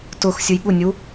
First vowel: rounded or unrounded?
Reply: rounded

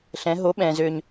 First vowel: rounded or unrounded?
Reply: unrounded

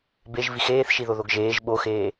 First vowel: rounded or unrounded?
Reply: unrounded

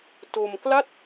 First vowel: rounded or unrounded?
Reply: rounded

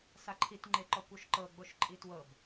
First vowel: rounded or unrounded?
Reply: unrounded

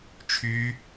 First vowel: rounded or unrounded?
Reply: rounded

